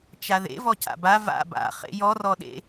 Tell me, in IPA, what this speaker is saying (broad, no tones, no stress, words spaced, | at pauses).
t͡ʃaðḛ vɔca̰ba va̰ ba̰ χḛjɔ rɔɗḛ